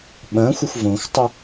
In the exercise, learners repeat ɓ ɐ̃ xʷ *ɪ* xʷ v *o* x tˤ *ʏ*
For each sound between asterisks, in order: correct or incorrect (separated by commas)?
correct, incorrect, correct